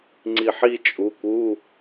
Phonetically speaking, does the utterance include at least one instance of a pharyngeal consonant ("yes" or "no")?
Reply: yes